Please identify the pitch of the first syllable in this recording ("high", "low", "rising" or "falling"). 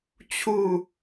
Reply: falling